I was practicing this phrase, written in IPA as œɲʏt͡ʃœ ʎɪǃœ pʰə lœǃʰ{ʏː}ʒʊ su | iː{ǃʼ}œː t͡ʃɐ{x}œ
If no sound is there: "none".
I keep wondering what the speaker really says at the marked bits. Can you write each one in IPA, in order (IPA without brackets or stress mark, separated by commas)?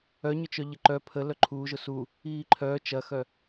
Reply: uː, ǃʰ, x